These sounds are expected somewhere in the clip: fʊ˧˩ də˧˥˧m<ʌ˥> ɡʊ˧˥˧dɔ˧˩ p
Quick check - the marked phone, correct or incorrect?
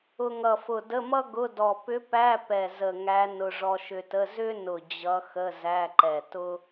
correct